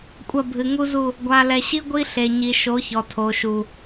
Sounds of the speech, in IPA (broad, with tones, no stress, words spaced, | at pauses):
kʷʼɐ˦˨bʱɨ˨ŋu˦zu˦˨ | ɡʷa˨lɛ˨ɕi˦ ɡʷi˦ɬe˨ ɲi˨ʃo˨˦çɔ˨ tʰo˨ʃu˨